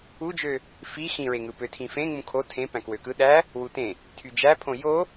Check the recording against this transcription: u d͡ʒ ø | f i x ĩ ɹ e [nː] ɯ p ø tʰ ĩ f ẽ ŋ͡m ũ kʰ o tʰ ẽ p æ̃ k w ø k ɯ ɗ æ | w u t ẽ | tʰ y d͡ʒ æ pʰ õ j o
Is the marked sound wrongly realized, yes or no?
yes